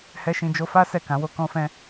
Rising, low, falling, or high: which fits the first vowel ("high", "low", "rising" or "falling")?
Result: high